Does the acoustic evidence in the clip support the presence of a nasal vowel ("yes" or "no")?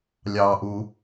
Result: no